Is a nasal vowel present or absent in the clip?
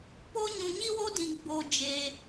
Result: present